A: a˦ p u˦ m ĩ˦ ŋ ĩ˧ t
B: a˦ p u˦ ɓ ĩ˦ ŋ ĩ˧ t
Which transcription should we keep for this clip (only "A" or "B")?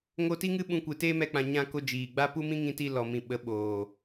A